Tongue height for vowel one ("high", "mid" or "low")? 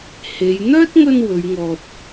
mid